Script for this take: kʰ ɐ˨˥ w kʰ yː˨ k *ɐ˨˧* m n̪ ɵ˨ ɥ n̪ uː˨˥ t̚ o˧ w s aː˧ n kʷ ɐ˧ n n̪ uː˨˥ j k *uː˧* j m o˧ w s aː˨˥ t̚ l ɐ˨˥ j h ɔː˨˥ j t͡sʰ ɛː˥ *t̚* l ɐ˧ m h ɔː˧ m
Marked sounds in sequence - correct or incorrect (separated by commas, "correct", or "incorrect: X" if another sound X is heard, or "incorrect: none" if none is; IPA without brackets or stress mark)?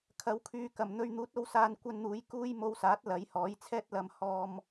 incorrect: ɐ˨˩, correct, correct